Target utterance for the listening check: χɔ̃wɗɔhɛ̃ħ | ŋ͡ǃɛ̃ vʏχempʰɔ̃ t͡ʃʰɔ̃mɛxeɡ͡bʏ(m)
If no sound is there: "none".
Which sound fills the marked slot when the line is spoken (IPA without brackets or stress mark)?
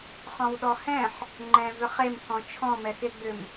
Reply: m